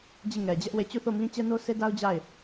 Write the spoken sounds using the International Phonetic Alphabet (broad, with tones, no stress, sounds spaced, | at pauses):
d͡ʑ i˦˨ ŋ ɛ˨ d͡ʑ ɛ˦ ʔ w e˦˨ t͡ɕ u˦˨ θ o˦˨ m ĩ˦ t͡ɕ ɛ˦ n o˦ s e˦ d a˦ ʊ̯ d͡ʑ a˦˨ ɪ̯